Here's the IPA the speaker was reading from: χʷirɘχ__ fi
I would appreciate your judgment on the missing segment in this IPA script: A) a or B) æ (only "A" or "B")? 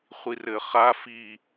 A